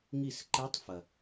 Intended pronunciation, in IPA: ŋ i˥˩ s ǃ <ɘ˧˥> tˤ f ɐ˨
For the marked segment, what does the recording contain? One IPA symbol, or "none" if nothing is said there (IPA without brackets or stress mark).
e˧˥